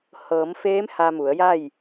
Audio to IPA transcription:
h ɤː˩˧ m f eː˧˥ m h a˧ m u˩˧ ə̯ j a˥˨ j

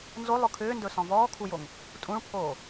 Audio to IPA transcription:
n z o lˠ ʊ kʰ ʏː n d ɵ s ɔ̃ v ɔː kʰ u j o ŋ | tʼ ũ ɭ pʰ oː

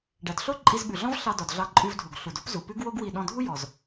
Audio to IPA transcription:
ɖ æ˩ d ɬ o˥ ǃʼ i˧ z ɓ ʉ˩ ɮ ɔ̃˥ v ɬ ɑ˧ d ɔ˩ d ɮ ɑ˧ ǃʼ ʉ˧ v dʱ u˩ ɡ ɬ u˩ d o˥ p z u˩ p ʉ˥ ɡ w o˥ ɡ w i˧ ɗ ɔ̃˧ dʱ u˥ j ɔ˩ z

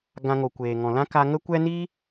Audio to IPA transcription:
ɡ ã˧ ŋ o˨ kʷ eː˨ ŋ ɔ̃˨ l ã˦ k a˧ ŋ ə˦ kʷ ɛ˦ n iː˦

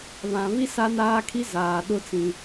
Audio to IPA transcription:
β ã˨ β i˦ s a˦ n aː˦ kʰ i˦ z aː˨ ɗ ʊ˦ t͡s ĩ˦

